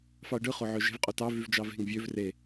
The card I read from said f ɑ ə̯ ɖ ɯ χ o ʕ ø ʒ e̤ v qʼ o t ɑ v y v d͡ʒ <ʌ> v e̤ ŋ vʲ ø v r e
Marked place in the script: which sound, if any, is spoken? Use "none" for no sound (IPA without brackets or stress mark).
ɑ